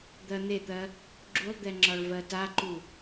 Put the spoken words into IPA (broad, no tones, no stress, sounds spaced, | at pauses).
d̪ ɜ n̪ e t̪ ɜ | ɡ͡ǁ u lˠ d̪ ɛ ŋ͡ǁ ɒ ɭ v ɜ t a ǃ u